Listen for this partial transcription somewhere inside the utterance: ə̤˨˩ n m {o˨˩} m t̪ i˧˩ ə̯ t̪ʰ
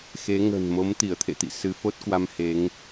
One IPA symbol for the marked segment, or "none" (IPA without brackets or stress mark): o˨˦